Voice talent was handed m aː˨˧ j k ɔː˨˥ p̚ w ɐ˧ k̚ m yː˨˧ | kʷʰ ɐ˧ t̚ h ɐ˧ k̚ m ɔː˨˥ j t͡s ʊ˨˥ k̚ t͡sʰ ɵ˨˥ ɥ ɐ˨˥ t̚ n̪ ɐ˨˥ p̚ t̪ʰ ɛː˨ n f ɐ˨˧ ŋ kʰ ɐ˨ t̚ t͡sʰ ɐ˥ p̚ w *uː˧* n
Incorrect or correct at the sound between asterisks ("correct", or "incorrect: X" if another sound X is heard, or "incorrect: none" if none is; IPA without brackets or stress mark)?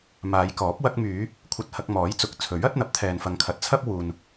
incorrect: uː˨